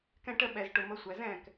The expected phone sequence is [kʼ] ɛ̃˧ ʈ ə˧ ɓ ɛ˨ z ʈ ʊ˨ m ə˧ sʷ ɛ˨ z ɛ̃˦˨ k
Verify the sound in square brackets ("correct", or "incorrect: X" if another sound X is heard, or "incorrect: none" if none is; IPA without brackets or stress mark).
incorrect: k